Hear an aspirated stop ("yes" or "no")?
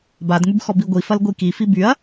no